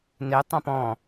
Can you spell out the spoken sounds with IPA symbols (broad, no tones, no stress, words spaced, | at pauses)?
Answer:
ne tˤãpɔ̃